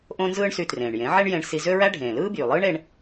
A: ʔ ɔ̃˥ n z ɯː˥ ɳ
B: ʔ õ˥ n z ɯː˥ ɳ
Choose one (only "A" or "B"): B